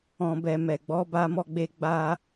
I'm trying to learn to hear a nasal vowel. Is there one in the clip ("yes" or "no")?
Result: yes